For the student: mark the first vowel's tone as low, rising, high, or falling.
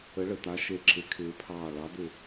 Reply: rising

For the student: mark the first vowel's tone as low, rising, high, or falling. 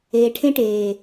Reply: low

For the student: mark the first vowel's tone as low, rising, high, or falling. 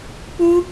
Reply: high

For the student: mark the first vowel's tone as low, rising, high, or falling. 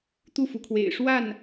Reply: falling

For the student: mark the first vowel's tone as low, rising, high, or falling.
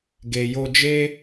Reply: low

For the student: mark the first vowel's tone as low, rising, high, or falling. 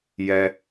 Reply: high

